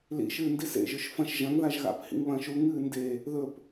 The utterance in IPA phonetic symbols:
l ḭ ʃ ɨː n d i s ḛ ʒ ɵ ʃ f ɐ̃ ʃ ʒ ɐ̃ ŋ ð a ʒ ɣ a̰ p h ḭ ŋ β ɐ̃ː ʃ u ŋ ɨː n d e | ð ɵ p

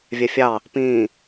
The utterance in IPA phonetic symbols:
vʲ ɛ fʲ ɑ | p ĩː

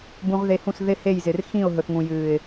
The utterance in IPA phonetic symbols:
b ũ˧ ʁ ð e˧ h ũ˦˨ s ð ɪ˦ h e˦˨ j z ɪ˨ r x ĩ˦˨ ʊ̯ ɦ ɵ˨ θ ŋ ũ˨ j ɨː˨ ɪ̯

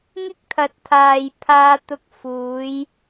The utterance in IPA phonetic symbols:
ŋ ɪ˥ k̚ t̪ʰ ɐ˨ t̚ t̪ʰ aː˨ j pʰ aː˧ t̪ ʊ˧ k̚ f uː˨˧ j

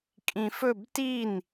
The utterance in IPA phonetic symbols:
kʼ ĩ f ɵ b t i n

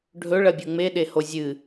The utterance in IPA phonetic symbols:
ɖʱ ɵ ɭ ɐ bʲ u ŋ͡m e ɗ e h o zʲ ɨ

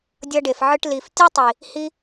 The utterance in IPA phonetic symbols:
dʲ ʌ˧ ɖ e˨ f ʕ ɯ˧ ʈ l i˨ f tʲ ɯ˦ tˤ i˨ | h i˧

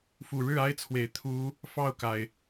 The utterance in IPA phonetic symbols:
f u˨˩ ɻ ɻ̩˥˩ a˥ ɪ̯ t͡sʰ w e˨˩ ɪ̯ t̪ʰ u˧˥ | f ɑ˥˩ ʊ̯ k a˩ ɪ̯

